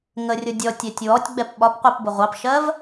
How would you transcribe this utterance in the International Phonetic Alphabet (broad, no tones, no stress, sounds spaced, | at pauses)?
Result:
ŋ ə rʲ ʊ dʲ ɔ tʲ ɛ tʲ w ɔ tʲ ɡ͡b ɛ p ɓ ɒ p qʷ ɜ p b ʊ ʁʷ ɑ p ʃ ɜ v